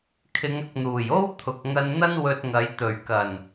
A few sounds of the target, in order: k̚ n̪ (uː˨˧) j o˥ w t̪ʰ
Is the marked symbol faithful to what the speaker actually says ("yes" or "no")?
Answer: no